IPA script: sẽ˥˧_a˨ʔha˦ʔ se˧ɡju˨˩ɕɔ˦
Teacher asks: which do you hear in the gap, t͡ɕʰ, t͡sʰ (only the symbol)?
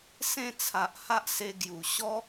t͡sʰ